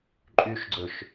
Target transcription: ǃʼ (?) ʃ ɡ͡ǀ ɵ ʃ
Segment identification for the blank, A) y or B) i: A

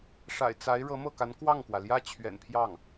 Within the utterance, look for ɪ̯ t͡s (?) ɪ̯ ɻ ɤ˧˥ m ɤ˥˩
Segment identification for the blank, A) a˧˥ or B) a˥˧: A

